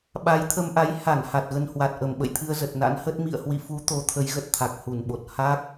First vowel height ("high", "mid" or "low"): low